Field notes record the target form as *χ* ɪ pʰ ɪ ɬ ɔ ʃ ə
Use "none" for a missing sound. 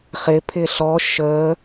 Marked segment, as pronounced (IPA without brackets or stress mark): χ